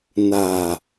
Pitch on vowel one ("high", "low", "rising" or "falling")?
low